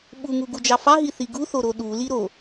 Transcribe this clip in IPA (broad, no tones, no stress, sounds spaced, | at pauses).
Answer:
ɓ u ŋ u ɡ u d͡ʒ ɑ f ɑ ɦ i θ i ɡ u θ o ɾ o ɗ u l i ɾ o